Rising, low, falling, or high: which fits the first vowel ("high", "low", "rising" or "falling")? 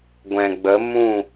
low